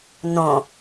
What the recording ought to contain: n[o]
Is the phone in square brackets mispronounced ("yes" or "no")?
yes